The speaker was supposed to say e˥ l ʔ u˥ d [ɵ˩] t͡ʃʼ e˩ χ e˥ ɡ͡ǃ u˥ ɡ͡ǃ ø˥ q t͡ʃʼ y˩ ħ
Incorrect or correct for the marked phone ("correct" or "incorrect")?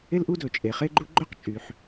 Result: correct